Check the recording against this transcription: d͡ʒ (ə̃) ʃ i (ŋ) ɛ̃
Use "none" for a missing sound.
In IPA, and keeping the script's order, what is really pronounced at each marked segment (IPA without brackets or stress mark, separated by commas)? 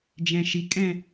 ɛ̃, kʼ